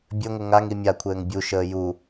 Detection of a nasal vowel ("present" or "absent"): absent